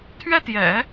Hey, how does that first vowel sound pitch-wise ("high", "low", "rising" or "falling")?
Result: high